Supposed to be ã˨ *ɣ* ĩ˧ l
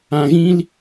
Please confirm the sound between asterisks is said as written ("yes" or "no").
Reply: yes